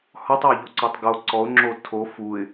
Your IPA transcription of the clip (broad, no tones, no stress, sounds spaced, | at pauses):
h ɔ tˤ æ ʎ o ǀ ɔ tˤ ɡ o ǀ ɔ ʊ̯ ŋ͡ǁ o tʰ o f u ɪ̯